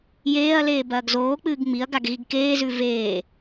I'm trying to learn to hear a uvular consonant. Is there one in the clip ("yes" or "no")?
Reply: no